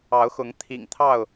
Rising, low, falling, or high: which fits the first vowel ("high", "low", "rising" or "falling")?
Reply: rising